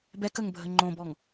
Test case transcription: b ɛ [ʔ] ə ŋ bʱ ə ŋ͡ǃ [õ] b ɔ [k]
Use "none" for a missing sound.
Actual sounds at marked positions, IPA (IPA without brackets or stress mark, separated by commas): k, õ, ŋ